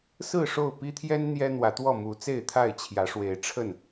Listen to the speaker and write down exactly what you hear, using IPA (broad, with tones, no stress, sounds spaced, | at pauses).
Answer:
s ɹ̩˥˨ ʂ o˥˨ ʊ̯ p i˦ t̪ʰ j ɛ˦ n n̪ j ɛ˦ n̪ w ä˨˦ t̪ w ɔ˥˨ m u˨˦ t͡s e˥˨ ɪ̯ t̪ʰ a˥˨ ɪ̯ t͡ɕʰ j ä˨˦ ʂ w e˨˦ ɪ̯ ʈ͡ʂʰ ə˥˨ n